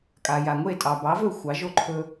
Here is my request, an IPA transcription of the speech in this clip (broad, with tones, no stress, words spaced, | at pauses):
kʼa˩ja˩ŋʷe˥˩ tʼɑ˩bɑ˩˥vɵ˥˩ xʷɑ˩˥ʒo˥˩ ǃʰɵ˧